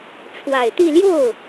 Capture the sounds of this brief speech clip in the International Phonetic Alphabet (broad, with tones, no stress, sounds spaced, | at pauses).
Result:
ʈ͡ʂʰ w a˨˩ ɪ̯ t̪ i˥˧ l j o˥˩ ʊ̯